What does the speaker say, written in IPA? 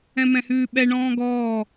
ɛ̃ m ɛ̃ h ʉː ɓ ɛ ɳ ɔ̃ː ɡ ɔː

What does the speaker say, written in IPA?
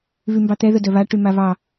β y m b ɑ t̪ ɛ ð ə d œ β a ʈ y m a β ɑ

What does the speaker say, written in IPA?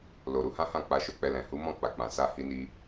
l o˨ ɾ u˨˦ h ã˦ h ã˦˨ k͡p a˧ ʃ o˦ k͡p ɛ˧ l ɛ̃˨ h u˨˦ m ɔ̃˦˨ k͡p a˨ k͡p ã˨ s a˧ h i˧ n i˧

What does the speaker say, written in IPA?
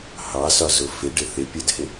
h ɑ s ɒ z ʊ f ɪ ɖ ɪ θ ɪ pʲ ɜ d h ɪ

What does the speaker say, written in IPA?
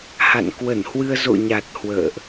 h a̰˧˨ n k w ə˧˩ n h w ɨ˧ ə̯ z o̰˧˨ ɲ a˨˩ t̚ h w ə̰ː˧˨ ʔ

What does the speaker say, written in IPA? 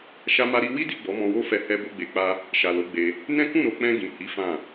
ʃ a˦ m a˦ ɾ i˦ w i˦ d i˦˨ ɡ͡b ɔ˨˦ m ɔ̃˧ w o˦ f ɛ˧ h ɛ˦ b o˦ ɡ͡b e˧ k͡p a˦ | ʃ a˨ l o˨˦ ɡ͡b e˧ | n ɛ̃˦ k ũ˦˨ ɾ o˨ k͡p ɛ̃˧ ɡ ĩ˨ h i˨˦ f ã˦˨

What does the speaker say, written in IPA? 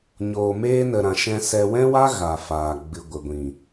ɲ oː˨ m eː˧ n ə˨ ɾ ã˨ ʃ ɛ̃˧ s ɛ˧ w ɛ̃˦ w a˦ ɣ a˨ f aː˨ ɡ͡b ɨ˨ ɡʷ ə˨ ɡʷ ĩ˨

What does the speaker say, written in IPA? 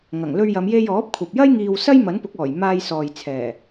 ŋ ɐ˨˩ ŋ l ɵ˧ ɥ j ɐ˨˧ m j e˧ j ɔː˨˥ p̚ kʷʰ ɐ˨ p̚ j ɐ˥ j ŋ iː˧ w s ɐ˥ j m ɐ˨˥ n p ʊ˨˥ k̚ ɔː˨˩ j m aː˧ j s ɔː˨ j t͡sʰ ɛː˨˩

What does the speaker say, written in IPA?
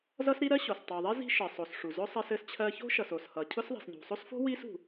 z ʌ˥ s ɾ i˥ ɾ ɜ˥ ɕ o˨ s tˤ u˨ ðˤ i˥ z i̤˥ ʃ ɘ˨ sˤ o˨ s ʂ u˨ z ʊ˥ sˤ ɜ˥ s ɘ˥ s t͡ɕʰ ɜ˥ ç o̤˥ ʃ ʌ˨ s o˨ s h ʌ˨ cʰ ʊ˥ s ðˤ i̤˨ s ɲ ṳ˨ sˤ o˥ s f o̤˥ w i˥ s ṳ˨

